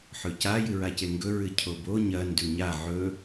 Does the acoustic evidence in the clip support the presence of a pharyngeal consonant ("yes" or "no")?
yes